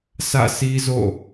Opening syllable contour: falling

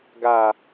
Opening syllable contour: low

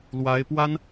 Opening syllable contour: rising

